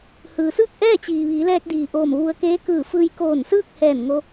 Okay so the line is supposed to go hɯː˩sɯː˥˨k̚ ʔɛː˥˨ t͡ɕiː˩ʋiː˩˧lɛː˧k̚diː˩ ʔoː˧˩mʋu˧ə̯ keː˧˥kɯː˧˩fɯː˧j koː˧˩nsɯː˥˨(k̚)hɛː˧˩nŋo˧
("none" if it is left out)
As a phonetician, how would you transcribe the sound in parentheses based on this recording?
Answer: k̚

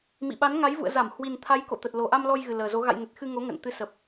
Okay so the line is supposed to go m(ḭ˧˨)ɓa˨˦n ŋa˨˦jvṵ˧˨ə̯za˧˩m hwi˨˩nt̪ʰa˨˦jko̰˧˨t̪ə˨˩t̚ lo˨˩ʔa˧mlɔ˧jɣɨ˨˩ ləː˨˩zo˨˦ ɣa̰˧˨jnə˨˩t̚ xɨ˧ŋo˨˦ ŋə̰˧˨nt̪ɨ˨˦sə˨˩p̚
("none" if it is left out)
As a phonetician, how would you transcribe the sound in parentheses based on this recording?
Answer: ḭ˧˨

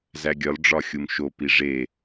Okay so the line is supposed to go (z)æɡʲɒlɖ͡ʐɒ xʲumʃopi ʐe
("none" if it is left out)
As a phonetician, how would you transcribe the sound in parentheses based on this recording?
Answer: z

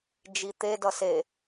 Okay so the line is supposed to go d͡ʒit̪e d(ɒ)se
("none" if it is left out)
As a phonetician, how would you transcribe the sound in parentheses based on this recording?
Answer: ʌ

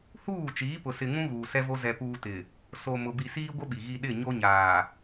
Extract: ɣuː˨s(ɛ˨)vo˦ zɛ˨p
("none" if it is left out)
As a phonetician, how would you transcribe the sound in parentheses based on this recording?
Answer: ɛ˦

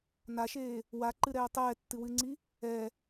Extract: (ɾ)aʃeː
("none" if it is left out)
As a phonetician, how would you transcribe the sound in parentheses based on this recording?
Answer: n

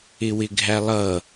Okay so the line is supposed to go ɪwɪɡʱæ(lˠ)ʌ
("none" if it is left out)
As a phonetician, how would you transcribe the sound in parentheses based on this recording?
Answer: lˠ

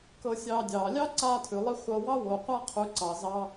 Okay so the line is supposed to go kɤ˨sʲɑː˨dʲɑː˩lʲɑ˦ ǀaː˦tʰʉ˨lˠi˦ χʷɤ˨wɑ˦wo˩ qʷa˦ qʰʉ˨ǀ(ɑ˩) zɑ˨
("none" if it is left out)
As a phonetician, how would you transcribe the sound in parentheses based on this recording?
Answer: ɑ˩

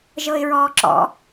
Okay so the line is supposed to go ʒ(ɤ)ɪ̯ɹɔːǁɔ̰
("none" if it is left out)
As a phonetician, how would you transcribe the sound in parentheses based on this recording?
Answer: ɤ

